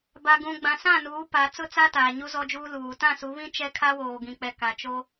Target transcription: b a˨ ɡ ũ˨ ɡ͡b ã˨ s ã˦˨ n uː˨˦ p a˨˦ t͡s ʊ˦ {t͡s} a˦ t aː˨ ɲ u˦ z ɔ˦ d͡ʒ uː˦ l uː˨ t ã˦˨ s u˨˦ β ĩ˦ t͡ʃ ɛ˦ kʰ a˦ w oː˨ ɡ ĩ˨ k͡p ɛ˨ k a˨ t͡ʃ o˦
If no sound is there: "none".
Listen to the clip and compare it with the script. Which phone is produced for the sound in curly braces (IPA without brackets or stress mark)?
t͡s